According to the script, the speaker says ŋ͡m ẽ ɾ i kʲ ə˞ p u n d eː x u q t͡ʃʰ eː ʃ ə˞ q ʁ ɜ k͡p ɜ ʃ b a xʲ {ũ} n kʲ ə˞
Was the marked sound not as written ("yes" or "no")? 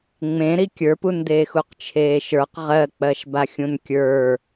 no